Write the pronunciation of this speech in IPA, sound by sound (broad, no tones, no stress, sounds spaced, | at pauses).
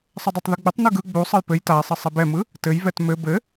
sˤ ə dˤ e tˤ ð ɯ ɡ͡b ʏ tˤ n ɯ ɡ ɯ ɡ͡b u sˤ ɘ j p ɘ j t a e̯ sˤ ɘ sˤ e b ɛ m ɯ | t ɘ j v ɛ t m ɘ b ɘ